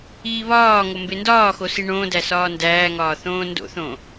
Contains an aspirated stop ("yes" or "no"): no